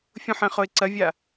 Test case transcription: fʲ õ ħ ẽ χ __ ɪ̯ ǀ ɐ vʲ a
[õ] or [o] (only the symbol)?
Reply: o